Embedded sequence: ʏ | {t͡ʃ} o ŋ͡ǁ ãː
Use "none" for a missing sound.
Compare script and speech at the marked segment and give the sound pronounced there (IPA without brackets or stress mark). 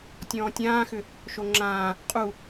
ʃ